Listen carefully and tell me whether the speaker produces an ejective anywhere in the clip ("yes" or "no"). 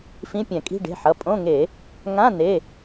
yes